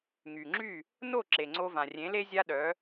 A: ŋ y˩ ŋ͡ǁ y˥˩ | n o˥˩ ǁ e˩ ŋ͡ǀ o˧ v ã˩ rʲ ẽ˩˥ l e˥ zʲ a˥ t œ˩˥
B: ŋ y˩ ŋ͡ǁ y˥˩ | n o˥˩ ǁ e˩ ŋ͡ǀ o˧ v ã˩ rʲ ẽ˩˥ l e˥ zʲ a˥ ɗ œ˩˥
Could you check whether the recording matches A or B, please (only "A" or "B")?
B